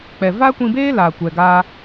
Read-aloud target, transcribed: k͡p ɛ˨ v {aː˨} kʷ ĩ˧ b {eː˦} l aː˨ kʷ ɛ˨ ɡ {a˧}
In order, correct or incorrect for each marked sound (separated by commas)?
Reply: incorrect, correct, incorrect